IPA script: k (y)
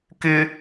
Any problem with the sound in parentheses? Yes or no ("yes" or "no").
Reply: yes